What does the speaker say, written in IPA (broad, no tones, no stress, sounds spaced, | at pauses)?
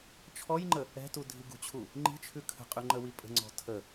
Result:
t͡ʃʰ ɔ j ŋ͡ǃ ə | ɛ̤ t u dʱ i ɡ ṳ t͡ɕʰ u | ŋ͡ǃ i̤ t͡ʃʰ ʉ kʰ ə̤ qʼ ʉ ŋ͡ǃ ə w i pʼ ə̤ ŋ͡ǀ ɔ̤ tʰ ə